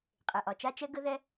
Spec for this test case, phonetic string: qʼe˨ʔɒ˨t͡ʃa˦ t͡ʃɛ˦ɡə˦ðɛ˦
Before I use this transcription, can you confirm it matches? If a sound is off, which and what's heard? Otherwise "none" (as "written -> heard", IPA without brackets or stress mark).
none